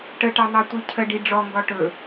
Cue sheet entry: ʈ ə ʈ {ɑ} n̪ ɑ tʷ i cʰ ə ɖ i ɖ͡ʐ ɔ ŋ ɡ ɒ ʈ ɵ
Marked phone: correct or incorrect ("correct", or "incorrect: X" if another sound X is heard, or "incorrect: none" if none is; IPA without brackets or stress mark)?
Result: correct